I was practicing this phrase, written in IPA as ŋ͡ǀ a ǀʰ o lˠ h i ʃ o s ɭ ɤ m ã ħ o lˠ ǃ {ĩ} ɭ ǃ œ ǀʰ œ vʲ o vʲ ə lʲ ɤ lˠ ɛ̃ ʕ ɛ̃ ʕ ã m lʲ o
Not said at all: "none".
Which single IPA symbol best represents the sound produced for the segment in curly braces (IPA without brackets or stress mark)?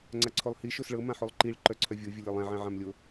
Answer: i